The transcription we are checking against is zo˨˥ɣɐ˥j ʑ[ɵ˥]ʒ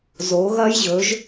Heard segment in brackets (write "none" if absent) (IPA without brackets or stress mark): ɵ˨˥